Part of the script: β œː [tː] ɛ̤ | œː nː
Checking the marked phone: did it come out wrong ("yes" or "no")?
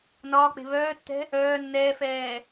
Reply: no